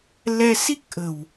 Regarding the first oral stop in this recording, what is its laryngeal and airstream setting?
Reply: plain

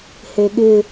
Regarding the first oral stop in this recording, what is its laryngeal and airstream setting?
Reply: implosive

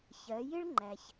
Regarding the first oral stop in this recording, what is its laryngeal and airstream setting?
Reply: click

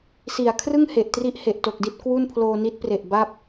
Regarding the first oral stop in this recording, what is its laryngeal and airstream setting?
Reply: aspirated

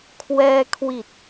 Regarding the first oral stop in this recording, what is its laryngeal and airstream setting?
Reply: aspirated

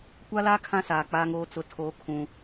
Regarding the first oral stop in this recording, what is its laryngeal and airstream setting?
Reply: plain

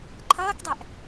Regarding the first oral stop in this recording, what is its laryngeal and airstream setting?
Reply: click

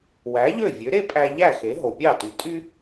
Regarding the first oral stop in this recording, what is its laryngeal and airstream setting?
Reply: ejective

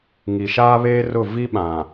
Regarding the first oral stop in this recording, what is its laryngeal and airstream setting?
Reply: implosive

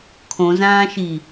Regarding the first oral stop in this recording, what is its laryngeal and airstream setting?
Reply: aspirated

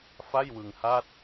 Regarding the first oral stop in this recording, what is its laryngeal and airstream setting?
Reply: plain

